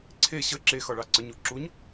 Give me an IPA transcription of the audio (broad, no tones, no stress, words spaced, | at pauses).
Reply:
ǀʰe ɕə ǁe xɒɭɑǀəɲu ǁuɲ